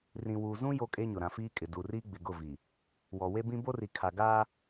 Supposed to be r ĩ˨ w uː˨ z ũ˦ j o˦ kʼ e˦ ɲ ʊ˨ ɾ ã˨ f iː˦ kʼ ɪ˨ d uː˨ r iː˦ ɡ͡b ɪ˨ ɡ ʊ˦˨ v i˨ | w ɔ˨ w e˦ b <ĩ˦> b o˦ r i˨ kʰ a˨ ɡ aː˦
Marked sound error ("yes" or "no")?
no